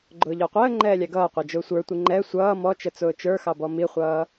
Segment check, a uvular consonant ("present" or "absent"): present